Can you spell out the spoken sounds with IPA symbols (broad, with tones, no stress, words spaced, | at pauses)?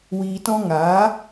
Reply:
wiː˧tɔ̃˦ ŋaː˨˦